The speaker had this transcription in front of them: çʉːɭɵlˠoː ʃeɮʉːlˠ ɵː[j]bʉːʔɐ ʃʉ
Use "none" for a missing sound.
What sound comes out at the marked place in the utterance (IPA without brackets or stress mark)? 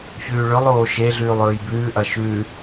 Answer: j